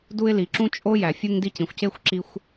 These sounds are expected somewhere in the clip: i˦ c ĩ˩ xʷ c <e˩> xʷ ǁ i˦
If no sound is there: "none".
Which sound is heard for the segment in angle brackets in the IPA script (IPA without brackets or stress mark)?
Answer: e˦